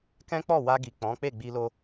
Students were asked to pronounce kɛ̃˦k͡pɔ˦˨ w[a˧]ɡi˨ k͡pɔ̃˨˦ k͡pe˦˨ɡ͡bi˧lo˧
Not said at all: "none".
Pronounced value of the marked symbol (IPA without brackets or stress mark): a˧